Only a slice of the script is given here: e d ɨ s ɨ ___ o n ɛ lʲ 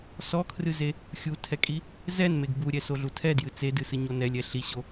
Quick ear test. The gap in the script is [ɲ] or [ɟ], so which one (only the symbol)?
ɲ